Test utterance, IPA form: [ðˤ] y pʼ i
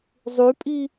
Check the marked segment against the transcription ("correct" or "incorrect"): incorrect